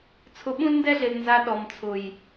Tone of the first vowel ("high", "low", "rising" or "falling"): low